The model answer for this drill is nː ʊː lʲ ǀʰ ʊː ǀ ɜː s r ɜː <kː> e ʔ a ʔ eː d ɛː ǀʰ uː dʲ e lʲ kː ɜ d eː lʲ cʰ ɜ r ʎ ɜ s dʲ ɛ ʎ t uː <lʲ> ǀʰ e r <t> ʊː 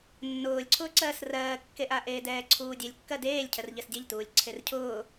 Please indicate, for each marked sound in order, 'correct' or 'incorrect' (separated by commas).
correct, correct, incorrect